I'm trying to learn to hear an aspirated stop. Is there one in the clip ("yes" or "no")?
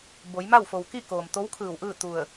yes